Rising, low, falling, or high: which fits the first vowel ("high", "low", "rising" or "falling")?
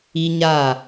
high